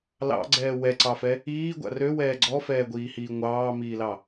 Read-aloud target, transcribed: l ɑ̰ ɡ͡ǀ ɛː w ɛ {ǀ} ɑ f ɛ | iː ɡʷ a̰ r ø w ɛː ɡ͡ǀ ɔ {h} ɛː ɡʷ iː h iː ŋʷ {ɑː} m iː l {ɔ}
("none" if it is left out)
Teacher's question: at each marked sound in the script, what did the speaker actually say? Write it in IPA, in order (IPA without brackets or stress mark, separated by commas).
ǀ, f, ɑː, ɑ